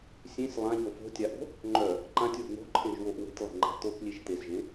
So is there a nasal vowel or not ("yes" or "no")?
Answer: yes